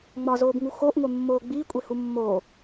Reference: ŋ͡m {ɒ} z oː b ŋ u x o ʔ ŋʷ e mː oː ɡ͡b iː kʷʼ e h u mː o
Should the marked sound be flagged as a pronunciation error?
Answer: no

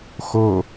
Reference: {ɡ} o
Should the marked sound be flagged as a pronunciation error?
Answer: yes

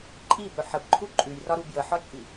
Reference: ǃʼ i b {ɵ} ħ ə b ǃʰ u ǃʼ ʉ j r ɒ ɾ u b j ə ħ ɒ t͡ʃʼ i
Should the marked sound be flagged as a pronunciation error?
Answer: no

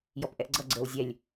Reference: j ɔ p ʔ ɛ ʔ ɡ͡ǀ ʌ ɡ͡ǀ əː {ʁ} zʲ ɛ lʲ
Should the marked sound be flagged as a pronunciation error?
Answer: yes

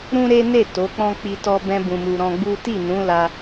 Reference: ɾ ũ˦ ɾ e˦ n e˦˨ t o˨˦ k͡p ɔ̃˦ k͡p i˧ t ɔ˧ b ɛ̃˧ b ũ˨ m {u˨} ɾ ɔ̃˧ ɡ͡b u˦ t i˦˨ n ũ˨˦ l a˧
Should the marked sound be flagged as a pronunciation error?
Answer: no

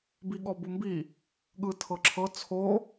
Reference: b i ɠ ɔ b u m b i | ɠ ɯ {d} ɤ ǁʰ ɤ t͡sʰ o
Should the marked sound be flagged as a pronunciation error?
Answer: yes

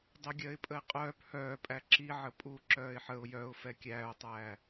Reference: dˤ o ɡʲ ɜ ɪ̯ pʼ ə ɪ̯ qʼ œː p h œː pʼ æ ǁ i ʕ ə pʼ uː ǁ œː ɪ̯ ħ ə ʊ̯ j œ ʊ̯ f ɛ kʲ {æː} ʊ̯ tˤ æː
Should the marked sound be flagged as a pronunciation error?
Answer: no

